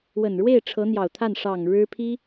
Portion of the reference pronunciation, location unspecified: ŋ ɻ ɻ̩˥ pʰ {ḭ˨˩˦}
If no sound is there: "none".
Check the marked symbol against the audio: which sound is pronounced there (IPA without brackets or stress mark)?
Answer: i˥